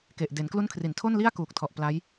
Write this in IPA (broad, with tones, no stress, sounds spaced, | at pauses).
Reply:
k e˨˩ ʔ d e˩˦ n k l u˦˥ n kʰ r i˩˦ n tʰ o˥˩ n l i˥˩ a̯ k uː˨˩ k̚ tʰ ɔ˨˩ ʔ p l a˦˥ j